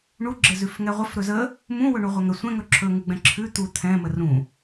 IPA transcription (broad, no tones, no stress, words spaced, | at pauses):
ɳu ɡ͡ǁɘzʉfŋɛʁʷəf ɾɵzə | mũwɵ ɳuʁʷɛŋə sʷɛ̃ŋɵ ǁʰɵŋʉɡ͡bɛ̃ ǁʰʉ t̪u t̪ʰɛ̃mə rũ